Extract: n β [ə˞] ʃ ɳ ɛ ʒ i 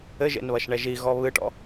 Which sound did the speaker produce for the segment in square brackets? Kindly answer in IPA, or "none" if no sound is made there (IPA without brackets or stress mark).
ɐ